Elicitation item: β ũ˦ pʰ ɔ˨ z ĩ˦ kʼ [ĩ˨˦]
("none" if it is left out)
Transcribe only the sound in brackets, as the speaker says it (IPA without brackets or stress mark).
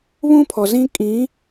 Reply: ĩ˨˦